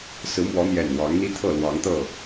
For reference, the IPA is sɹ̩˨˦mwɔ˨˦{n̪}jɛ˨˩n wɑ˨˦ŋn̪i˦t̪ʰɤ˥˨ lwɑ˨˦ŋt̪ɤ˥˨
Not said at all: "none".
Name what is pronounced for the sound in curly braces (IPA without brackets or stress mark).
n̪